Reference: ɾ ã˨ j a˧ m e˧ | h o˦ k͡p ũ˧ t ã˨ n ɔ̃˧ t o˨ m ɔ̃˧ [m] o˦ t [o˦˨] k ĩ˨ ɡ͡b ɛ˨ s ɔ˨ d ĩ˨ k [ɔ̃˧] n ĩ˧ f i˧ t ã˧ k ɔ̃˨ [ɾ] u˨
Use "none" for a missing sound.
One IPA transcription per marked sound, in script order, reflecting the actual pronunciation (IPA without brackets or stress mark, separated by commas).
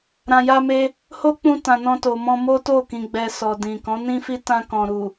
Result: m, o˦˨, ɔ̃˨˦, ɾ